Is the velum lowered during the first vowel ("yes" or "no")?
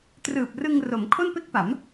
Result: no